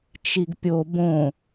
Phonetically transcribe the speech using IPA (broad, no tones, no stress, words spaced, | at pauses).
t͡ʃiɡpʲo bõ